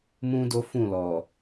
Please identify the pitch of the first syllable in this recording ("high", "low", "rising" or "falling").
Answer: high